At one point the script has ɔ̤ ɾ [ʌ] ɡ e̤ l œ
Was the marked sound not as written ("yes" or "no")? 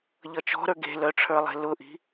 yes